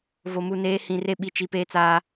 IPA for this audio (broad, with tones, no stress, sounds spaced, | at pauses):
v o˨ m u˨ n eː˨˦ h ĩ˨ r e˦ ɓ i˨ t͡ʃ i˨ p eː˦ t͡s aː˦